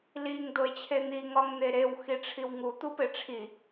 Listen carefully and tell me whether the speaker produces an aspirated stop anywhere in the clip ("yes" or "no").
yes